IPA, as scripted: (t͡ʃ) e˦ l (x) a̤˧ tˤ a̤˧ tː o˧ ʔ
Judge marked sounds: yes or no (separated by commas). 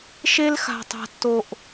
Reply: no, yes